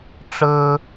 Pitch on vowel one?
high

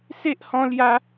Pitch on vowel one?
high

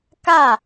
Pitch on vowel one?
falling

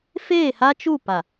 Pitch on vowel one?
falling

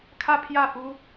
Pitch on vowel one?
falling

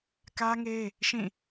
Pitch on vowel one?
high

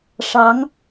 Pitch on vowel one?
rising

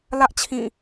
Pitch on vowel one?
high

